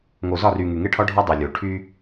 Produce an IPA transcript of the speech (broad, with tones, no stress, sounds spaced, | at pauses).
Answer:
ŋ o˨ z ɒ˦˨ r y˨ ŋ y˨ ŋ e˦ ʈʰ ɒ˦ ɖʱ ɒ˦ dˤ e˨ lʲ o˨ ʈʰ y˦